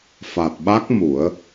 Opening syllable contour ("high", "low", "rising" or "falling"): low